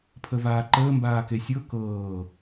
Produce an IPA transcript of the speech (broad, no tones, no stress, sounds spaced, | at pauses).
pʰ ə v aː ǃ əː m b aː k e sʲ ɤ k ɤː